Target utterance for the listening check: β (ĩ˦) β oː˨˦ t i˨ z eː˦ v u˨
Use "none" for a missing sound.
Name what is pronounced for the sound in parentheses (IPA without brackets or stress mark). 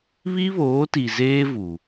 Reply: i˦